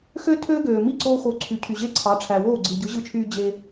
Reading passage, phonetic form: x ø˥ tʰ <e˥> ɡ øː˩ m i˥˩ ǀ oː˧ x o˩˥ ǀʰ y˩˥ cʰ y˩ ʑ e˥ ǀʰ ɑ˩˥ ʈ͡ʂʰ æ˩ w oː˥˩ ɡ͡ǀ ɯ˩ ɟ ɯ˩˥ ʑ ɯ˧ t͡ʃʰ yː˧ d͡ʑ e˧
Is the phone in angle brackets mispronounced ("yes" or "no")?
yes